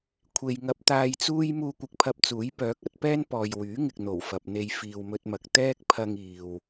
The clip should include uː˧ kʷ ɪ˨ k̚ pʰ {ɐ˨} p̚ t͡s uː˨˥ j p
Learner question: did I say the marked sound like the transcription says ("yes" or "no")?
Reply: no